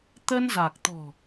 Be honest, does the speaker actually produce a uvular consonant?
no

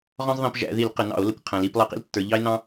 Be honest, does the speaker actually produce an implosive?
no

